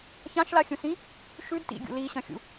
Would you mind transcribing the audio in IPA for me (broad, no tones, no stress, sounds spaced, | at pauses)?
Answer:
ç ã ʃ l a xʲ ũ s ĩ | ʃ ʉ d t ḭ ɡʲ ṵ l i ɕ ɐ̃ xʲ ṵ